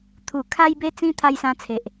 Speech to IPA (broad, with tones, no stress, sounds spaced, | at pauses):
t̪ʰ u˨˩ kʰ a˧ j b e˧ t͡s ĩ˧ t̪ʰ a˧ j s ã˧ t͡sʰ e˨ ʔ